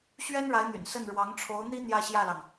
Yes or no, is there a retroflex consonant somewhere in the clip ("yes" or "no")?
yes